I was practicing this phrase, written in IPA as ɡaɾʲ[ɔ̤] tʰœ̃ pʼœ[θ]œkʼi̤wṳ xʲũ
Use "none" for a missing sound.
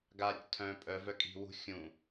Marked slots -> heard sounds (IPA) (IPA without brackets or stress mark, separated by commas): ɔ̰, v